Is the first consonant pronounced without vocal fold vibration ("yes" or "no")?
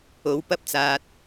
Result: no